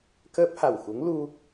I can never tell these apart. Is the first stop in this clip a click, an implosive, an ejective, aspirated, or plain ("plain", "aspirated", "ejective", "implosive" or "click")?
plain